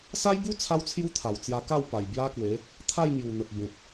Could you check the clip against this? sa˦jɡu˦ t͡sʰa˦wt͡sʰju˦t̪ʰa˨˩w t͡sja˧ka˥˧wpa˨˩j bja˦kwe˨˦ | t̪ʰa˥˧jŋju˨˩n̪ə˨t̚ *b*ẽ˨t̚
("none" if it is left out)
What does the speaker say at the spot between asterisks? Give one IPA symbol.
b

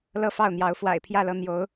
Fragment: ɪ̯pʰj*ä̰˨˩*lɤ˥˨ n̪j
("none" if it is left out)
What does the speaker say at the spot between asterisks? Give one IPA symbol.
ä˥˨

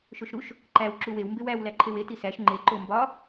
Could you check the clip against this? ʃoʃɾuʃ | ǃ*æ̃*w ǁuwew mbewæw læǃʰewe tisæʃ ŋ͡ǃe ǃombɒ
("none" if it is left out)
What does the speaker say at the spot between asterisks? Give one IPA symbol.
æ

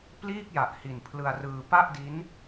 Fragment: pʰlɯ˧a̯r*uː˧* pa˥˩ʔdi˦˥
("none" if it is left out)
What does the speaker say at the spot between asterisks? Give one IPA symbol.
ɯː˧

